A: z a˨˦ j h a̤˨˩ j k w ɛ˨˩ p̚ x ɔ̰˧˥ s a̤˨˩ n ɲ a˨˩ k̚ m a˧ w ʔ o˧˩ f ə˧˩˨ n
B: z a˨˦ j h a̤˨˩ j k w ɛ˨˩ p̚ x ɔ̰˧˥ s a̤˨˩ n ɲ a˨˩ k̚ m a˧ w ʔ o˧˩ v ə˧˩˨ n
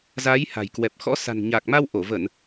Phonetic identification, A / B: B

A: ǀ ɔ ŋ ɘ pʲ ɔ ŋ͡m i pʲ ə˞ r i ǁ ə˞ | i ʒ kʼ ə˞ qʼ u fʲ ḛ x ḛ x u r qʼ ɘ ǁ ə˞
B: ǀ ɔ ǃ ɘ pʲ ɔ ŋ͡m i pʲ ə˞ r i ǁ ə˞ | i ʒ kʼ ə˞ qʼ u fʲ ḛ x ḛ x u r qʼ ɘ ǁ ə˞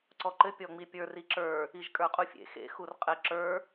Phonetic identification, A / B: B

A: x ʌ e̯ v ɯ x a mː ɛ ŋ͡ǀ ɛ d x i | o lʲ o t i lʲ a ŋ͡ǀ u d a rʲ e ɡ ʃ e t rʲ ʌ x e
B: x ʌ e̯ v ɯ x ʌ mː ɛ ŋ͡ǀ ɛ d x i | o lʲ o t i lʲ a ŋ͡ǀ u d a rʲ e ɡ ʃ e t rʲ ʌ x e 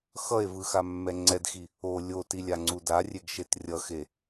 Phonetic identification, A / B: A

